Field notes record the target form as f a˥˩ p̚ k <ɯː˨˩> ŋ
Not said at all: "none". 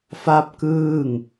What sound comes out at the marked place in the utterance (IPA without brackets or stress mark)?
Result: ɯː˥˩